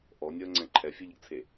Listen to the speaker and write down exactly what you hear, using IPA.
ʔɔnʲəːŋ͡ǀɛ̃ ǃʰɛfʲeʎəɡt͡sʰe

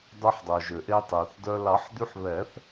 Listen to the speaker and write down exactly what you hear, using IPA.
dˤɵ˧ħdˤœ˩ʒø˩ʔe˧ tˤø˩θdœ˧ lɑ˨˩˦ħd̪y˧ħβɛ˨˩˦θ

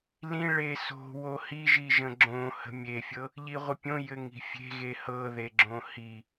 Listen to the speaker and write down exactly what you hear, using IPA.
lĩ ɭeso̤ wohiʒiʒə̃ ɡ͡ǁõ hə̤mʲefʲɤ | ʎiʁʷəpʲõ jɘŋi̤fʲe̤ɣe hɤðeɡ͡ǁõ hi

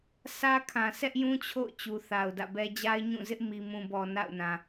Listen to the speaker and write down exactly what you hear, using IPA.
sä˦kʰã˨ sɛ˦ʔjũ˦t͡ɕʰo̰˦˨ʊ̯ t͡ɕu˨θa˨ʊ̯dä̰˦˨bɛ˦ d͡ʑa˦ɪ̯ɲũ˦˨zɪ˦ʔ mi˨mũ˨bɔ˨ na̰˦˨ʊ̯nã˨

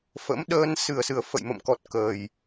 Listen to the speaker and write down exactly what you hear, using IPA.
fə̰˧˥mɗəː˧n sɨ˨˩ə̯sɨ˨˩ə̯ fə̰˧˨jmə̰˧˨mkɔ˨˩t̚ kəː˨˩j

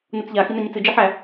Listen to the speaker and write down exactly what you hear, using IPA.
nut͡sʎa xinaɲɨt͡sɨ d͡ʒiħæ

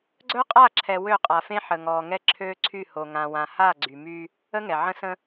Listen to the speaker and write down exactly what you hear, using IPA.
ɡ͡ǀœ˦qʼa˦˨ǁʰɛ˨ wø˦˨qʼa˨fẽ˦ ħə˨ŋɔː˨ ŋɛ˦ǁʰøː˦ǀʰy˦˨ ho˨ŋã˨wã˨ha˦˨ ɡ͡ǀy˨my˦ | ə˦ŋɛ˨ʕə̃˦ sə̃˦

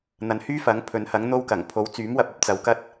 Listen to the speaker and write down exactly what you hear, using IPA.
n̪ɐ˨nhyː˥fɐ˨˥ŋpʰɵ˨˧n hɐ˨˥ŋ n̪o˧wkɐ˨˩ŋ pʰo˨˥wt͡syː˨˥mwɐ˧p̚ɐ˧p̚ t͡sɐ˨˧wkɐ˥t̚

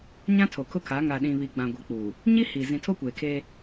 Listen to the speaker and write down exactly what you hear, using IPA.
ɲã˦tʰo˨kʰʊ˦kʰa˨˦ ŋa˨ɗĩ˨βi˨ ɡ͡bã˨ɡʷi˨k͡puː˨ | ɲi˦ hi˨ zĩ˨tʰo˦kʷeː˨kʰeː˦

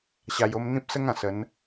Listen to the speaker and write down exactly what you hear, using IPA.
ɕa˨˩jo˧m n̪ĩ˦p̚sə˦ŋã˨˩ sə˨˦n

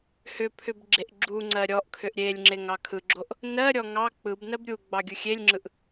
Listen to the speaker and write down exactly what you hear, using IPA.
hʏpʰʏb ɡ͡ǁeʔɡ͡ǁuŋ͡ǀɜ ɾʲɔʔkʰʏʔ ɾʲelʲ ŋ͡ǁeŋɑkʰɯɡ͡ǁoʔ | nɜɾʲɔ ŋɑ k͡pɯbnɜb ɾʲuɡ͡bɑ ɡʲɯxʲelʲŋ͡ǁɯʔ

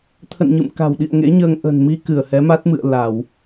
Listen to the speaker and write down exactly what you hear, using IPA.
t̪ʰə̰˧˨nɲɨ̰˧˨mka̤˨˩wɗḭ˧˨ə̯ ŋḛ˧˥ɲəː˧ŋ ʔə̤˨˩nmi˧ kɨ˧˩ə̯hɛ˨˦ma˦˥t̚ mɨ̰˧˨ə̯ la˧˩˨w

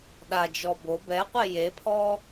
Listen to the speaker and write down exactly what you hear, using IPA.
ɗad͡ʒɔ bo bɛqʷe jepʰɔ

